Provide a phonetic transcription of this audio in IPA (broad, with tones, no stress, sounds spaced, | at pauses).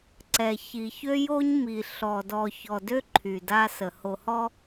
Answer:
ǀ ɛ˨ ç i˨ ç ø˦ j o˦ ɲ m i˨ ɬ ɔ˨ d ɔ˨ ç ɔ˨ d ø˦ ǃʰ y˨ d a˦ s ə˨ h o˨ h ɔ˦